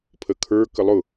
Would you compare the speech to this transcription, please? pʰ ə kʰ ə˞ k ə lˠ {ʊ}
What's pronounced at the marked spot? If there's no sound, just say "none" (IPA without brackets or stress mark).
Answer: ʊ